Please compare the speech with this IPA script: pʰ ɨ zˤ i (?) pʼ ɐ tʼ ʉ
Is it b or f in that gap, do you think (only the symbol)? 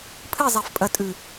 f